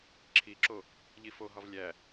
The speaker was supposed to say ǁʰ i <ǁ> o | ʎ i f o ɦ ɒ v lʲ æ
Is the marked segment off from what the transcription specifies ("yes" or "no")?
no